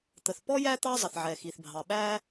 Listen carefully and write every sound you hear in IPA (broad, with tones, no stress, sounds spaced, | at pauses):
t̪ ə˩ θ p ɔ˥ j æ˥ t̪ ɑ˥ zˤ ə˩ θ ʕ ɛ˩ x i˩ θ bʱ ɑ˩ ɓ æ˥